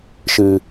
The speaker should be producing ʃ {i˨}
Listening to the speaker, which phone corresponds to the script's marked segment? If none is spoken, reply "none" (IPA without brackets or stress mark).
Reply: ɨ˨